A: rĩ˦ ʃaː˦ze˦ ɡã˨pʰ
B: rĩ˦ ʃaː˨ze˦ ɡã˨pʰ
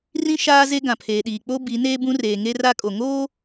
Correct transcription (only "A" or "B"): A